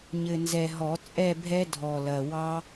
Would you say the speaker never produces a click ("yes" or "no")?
yes